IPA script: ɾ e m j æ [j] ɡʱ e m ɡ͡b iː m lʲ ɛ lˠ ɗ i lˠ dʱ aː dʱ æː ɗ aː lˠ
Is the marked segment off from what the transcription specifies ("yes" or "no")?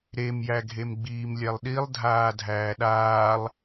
yes